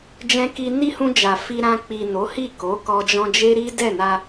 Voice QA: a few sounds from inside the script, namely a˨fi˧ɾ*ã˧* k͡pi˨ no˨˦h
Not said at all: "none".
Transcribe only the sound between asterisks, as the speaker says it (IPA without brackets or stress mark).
ã˧